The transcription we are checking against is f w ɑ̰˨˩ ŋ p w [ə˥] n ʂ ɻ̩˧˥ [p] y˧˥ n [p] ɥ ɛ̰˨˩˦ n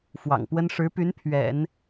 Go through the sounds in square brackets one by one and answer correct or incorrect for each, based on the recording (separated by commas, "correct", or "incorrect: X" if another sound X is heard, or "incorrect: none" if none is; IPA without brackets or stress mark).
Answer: correct, correct, incorrect: pʰ